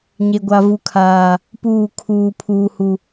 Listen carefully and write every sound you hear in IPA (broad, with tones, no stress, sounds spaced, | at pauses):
ɲ e˦ ɡʷ a˦ v u˦ kʰ aː˦ | p uː˦˨ kʰ uː˦ pʰ uː˦ h u˦